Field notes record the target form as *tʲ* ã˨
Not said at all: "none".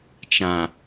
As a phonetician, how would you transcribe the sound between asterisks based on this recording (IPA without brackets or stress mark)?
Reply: t͡ʃ